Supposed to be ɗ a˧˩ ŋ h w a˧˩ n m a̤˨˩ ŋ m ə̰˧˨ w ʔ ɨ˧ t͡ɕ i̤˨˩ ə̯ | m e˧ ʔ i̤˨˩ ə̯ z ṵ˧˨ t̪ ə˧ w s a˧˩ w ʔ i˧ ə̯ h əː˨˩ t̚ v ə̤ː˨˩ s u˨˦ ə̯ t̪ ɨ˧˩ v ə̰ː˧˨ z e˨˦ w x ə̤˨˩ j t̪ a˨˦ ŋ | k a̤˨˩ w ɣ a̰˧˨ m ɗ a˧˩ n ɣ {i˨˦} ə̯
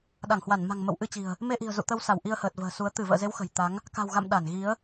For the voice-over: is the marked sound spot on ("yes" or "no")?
yes